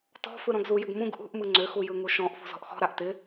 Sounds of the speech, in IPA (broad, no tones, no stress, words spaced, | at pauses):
tɔ̤ fɯɾɔ̃ɡzujʏɡ mũɡ ʔṳʔmɯ ŋ͡ǀʏxu jɯŋuʃɔ̃ʔfṳ zɔ̤ʔxɔ̤ɾaʔ tɪ